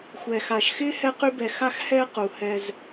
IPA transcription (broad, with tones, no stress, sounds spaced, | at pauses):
xʷ ɛ˩ x a˩ ʃ x ɪː˥ h ɛ˦ q y˦ b ɛ˨ x a˦ x h ɛ˦ q u˩ h ɛ˨ z